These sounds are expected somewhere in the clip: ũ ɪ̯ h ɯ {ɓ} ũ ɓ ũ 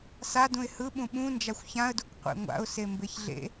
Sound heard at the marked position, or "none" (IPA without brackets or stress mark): ɓ